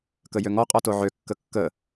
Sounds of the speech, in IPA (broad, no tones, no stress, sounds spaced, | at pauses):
k ə j ø ŋ ɔ qʼ ɔ t o ʕ ø kː ə kː ə